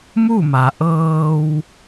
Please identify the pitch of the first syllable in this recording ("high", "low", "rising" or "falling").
falling